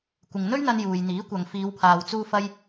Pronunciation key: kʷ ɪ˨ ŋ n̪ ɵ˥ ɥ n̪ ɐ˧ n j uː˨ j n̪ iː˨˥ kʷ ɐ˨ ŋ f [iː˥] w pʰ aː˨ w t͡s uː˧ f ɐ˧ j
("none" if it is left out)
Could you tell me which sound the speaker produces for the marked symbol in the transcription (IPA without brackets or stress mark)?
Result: iː˨˧